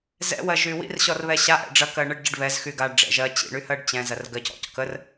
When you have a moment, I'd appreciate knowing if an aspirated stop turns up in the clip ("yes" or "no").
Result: no